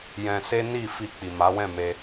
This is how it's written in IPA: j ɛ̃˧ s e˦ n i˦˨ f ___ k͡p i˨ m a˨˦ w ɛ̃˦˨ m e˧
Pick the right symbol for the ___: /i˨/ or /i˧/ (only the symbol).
i˧